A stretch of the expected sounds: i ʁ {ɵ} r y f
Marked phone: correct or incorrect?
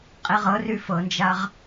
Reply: incorrect